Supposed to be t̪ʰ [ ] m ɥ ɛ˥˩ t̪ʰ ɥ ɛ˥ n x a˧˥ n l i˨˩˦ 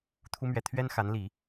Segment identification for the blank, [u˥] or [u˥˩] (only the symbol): u˥